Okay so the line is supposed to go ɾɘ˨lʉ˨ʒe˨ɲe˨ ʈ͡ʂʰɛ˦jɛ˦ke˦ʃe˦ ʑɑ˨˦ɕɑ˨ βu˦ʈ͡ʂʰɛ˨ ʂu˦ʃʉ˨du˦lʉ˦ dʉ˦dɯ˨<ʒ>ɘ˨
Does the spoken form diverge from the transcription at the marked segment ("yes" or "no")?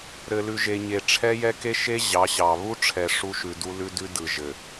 no